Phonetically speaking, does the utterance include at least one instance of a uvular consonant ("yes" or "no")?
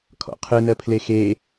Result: yes